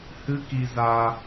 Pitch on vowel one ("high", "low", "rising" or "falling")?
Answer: high